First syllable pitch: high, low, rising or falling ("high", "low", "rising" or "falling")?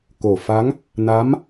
low